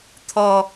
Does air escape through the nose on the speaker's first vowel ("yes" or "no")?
no